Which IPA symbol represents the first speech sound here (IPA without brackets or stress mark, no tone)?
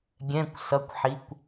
ɡʲ